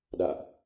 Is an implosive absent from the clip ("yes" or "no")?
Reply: no